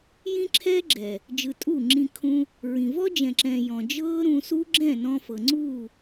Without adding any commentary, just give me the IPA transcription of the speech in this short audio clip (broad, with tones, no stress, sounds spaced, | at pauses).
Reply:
j ĩ˦ ǁʰ ɛ˦ ɡ͡ǁ ɛ˨ | d͡ʒ ɯ˨ tʼ u˦˨ ŋ͡ǁ ĩ˧ kʰ ũ˧ | ɹ ĩ˨ v ɔ˦ d͡ʒ ɛ̃˨ ǁ ɛ̃˨ j ɔ̃˨ d͡ʒ ɤː˦ ɾ ũ˧ s u˦ ɡ͡ǁ ɛ̃˦˨ n ɔ̃˧ f ɤ˨ ŋ͡ǀ uː˦˨